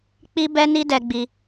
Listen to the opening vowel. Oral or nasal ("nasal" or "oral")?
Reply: oral